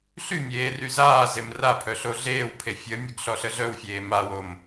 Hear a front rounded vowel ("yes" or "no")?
yes